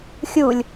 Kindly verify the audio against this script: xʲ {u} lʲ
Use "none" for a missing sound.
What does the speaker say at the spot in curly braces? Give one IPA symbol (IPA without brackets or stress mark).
u